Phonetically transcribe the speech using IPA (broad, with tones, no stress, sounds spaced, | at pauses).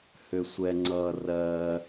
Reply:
h ʏ˩ sʷ ɛ˩ ŋ͡ǀ ʌ˩ r ɜ˩